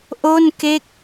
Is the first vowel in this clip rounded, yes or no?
yes